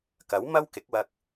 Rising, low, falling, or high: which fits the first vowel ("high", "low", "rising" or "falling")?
rising